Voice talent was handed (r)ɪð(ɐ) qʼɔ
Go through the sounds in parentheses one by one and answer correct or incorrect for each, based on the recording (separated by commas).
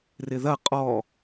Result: correct, correct